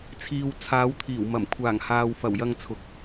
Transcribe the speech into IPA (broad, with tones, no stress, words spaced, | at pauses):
t͡sʰiː˨w t͡sʰaː˨˧wt̪ʰiː˨˩wmɐ˨˩m kʷʰaː˨˩ŋhaː˨w fɐ˨˩w jɐ˧ŋt͡sʰʊ˨k̚